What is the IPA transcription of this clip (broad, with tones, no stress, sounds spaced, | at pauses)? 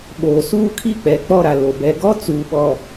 ɓ oː˨ s uː˦ kʰ i˦ k͡p ɛ˨ k͡p ɔ˦ ɾ a˨ l o˨ b ɛ˨ ɡ ɔ˦ t͡s uː˨ ɓ ɔ˨